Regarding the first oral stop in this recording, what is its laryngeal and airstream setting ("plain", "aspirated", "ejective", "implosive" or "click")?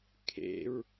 aspirated